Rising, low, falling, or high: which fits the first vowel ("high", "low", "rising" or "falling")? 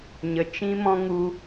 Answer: low